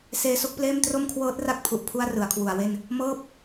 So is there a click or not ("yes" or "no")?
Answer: no